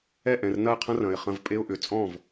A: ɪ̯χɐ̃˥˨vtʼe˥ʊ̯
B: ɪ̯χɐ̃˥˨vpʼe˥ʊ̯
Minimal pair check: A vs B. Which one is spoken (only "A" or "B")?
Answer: B